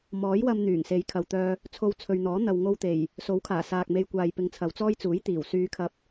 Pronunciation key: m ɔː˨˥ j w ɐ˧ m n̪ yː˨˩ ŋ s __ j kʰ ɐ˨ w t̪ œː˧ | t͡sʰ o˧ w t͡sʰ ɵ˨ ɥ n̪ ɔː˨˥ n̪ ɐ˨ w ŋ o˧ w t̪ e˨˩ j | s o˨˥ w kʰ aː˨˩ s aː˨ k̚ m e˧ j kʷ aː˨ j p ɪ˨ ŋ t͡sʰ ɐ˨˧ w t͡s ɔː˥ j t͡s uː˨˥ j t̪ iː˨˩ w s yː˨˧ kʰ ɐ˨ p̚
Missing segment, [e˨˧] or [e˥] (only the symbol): e˨˧